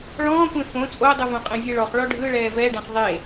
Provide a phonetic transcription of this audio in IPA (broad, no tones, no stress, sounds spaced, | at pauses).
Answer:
ɭ ɔ̃ː kʷ ẽ f õ t͡sʼ o dˤ ɯ v õ qʼ ẽ vʲ ɛ ɭ ɔ χ ɭ ɔ ɖʱ ɯ ɭ ɛː v ɛ ɖ ã χ ðˤ e